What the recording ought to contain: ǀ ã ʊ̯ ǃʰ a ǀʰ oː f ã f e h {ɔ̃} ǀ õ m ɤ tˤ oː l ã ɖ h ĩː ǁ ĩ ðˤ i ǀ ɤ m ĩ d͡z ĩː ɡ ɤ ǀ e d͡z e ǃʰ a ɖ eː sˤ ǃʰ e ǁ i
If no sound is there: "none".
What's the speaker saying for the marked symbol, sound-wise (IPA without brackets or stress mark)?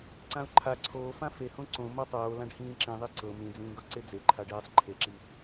õ